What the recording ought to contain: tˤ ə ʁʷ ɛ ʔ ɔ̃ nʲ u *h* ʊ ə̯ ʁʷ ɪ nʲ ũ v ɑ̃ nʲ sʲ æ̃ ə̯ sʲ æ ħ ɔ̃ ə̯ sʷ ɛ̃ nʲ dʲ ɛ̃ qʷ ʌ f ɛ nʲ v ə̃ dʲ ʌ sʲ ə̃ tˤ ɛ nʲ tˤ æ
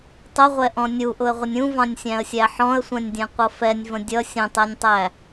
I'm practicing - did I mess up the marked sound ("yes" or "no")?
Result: yes